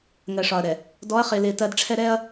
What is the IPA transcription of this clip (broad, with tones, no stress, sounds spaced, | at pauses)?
ŋ ɜ˨ ʂ ɒ˨ ɐ̯ ɾ ɛ˨ | d ɔ˨˦ ɐ̯ χ ɪː˨ l ɪː˨ t ɜ˨ d ʈ͡ʂʰ ɛ˦ ɾ ɛ˦ ɐ̯